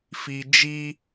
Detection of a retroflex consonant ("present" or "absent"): absent